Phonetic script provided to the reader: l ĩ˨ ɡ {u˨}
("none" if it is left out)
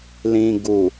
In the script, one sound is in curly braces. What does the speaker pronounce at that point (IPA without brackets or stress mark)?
u˨